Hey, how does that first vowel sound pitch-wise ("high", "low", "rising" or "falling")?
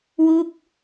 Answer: falling